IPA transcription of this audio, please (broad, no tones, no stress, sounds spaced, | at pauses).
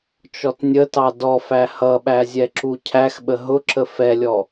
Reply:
t͡ʃ ɔ t nʲ ə t ɑ d ɔ f æ h ʌ ɓ æ zʲ ɛ ǁ u cʰ æ x ɓ ə ɦ ʊ ǁ ə f ɛ lʲ ɔ